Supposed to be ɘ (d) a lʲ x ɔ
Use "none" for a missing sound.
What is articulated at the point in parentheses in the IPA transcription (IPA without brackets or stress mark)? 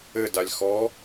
d